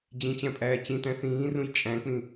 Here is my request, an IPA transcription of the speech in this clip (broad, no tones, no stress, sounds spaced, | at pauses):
d͡ʑ ĩ t͡ɕ æ̃ pʼ æː t͡ɕ ĩ t æ̃ θ ĩː r ũ j t͡ʃʼ æ̃ k͡p ĩ